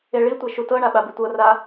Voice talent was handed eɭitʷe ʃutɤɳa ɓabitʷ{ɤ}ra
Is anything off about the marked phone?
no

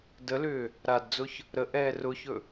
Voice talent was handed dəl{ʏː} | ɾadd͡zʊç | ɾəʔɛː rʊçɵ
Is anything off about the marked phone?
no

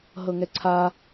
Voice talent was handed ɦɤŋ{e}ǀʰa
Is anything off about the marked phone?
yes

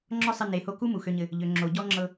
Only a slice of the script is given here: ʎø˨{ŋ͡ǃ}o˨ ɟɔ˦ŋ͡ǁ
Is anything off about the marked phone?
yes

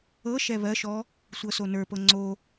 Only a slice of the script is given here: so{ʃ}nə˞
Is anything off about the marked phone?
yes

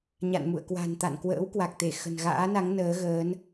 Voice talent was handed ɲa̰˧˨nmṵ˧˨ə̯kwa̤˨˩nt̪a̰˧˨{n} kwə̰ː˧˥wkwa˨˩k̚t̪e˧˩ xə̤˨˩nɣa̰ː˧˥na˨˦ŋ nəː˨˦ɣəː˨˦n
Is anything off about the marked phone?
no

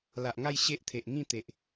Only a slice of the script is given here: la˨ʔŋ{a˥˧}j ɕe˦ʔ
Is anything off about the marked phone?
no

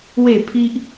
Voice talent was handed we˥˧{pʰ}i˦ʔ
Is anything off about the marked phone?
no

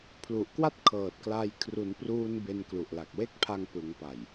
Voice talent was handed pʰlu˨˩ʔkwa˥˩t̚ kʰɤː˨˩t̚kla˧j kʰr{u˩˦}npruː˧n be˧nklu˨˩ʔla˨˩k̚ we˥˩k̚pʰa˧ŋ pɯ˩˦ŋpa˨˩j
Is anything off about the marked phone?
no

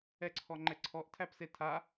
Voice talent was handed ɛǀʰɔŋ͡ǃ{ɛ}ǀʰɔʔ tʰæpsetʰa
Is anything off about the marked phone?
no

